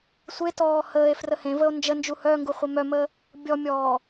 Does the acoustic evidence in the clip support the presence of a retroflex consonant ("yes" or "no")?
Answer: no